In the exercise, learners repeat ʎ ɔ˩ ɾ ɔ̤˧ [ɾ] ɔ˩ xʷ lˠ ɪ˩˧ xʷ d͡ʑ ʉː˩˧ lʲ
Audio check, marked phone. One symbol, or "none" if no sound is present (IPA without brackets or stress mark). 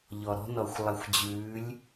n